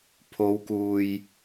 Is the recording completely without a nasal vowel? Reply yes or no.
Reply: yes